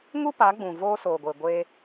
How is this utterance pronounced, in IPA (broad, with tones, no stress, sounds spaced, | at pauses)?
ŋ u˦ p a˨˦ ɡ͡b ũ˨ v oː˧ s oː˨ ɡʷ e˨ ɡʷ eː˧